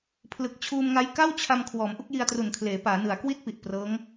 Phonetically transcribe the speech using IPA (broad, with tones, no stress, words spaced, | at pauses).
pʰlɯ˨˩k̚t͡ɕʰuː˧mŋa˦˥j ka˥˩wt͡ɕʰa˧m kʰwɔː˩˦mʔu˥˩k̚ji˧a̯tru˨˩n kʰleː˩˦paː˩˦ nɯ˩˦a̯kwi˥˩t̚pi˨˩ʔ prɤː˦˥ŋ